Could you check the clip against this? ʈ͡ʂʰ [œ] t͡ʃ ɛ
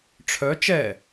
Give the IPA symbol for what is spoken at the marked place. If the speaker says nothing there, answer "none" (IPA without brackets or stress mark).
œ